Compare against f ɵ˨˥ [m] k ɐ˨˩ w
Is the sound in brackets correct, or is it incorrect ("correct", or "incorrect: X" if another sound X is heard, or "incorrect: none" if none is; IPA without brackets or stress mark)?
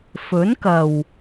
incorrect: n